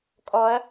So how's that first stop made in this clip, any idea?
ejective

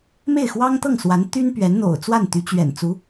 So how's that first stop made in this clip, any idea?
plain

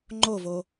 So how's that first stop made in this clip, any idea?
click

